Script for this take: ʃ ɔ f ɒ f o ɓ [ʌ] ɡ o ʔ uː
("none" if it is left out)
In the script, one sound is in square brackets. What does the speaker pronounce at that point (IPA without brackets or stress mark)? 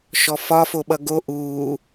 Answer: ʌ